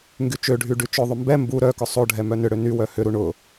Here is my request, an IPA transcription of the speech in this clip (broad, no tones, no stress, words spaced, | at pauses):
ŋɡyt͡ʃøɖʱy ɖyt͡ʃʊðˤʏ mbɛ mbu ɾœkʊ sˤoɖʱɛ mœnʏɽø nywœ hʏɾu ɳʊ